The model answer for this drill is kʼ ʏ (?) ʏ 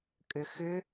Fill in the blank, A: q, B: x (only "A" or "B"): B